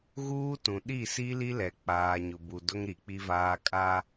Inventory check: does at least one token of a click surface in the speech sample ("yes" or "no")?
no